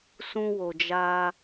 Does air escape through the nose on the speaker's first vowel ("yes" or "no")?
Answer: yes